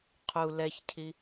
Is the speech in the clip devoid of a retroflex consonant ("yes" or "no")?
yes